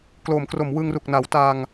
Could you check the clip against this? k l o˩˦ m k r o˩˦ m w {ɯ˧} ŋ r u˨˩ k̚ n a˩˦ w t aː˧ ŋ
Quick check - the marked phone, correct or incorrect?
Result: correct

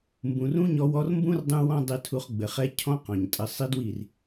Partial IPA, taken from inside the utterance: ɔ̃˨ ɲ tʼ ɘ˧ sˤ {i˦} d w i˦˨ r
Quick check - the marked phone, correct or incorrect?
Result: correct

